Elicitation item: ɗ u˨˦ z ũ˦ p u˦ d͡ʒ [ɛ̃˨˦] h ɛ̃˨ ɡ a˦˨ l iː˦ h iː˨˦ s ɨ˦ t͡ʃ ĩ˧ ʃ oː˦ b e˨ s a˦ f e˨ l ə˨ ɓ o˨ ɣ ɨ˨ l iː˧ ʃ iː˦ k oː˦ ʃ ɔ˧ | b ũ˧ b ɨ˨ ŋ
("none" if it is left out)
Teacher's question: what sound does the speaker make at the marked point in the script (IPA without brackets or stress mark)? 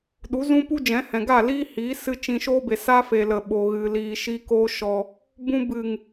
ɛ̃˨˦